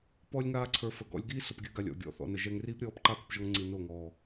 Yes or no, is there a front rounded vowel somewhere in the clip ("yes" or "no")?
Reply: no